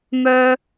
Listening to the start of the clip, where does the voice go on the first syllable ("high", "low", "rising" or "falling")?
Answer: high